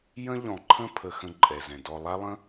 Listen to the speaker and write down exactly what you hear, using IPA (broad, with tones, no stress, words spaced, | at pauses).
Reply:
jə̃˦ʎɔ̃˨ ǃʰə̃˦pʰə˨ xə̃˦ǃʼɛ˨zɛ̃˨ dɔ˨lˠa˦ lˠə̃˦